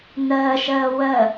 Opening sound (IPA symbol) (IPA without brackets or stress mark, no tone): n̪